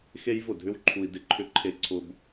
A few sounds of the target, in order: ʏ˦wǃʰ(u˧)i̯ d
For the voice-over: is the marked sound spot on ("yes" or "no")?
yes